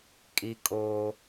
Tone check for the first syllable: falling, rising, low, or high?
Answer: high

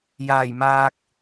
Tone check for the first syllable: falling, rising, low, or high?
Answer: low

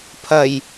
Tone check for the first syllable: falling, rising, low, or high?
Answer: low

